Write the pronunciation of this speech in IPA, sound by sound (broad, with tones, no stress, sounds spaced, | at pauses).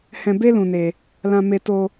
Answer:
h ɛ̃˧ b e˦ l ũ˧ n e˧ | l ã˧ m e˧ t o˧